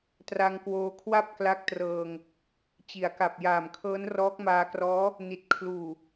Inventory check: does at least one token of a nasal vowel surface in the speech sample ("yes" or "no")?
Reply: no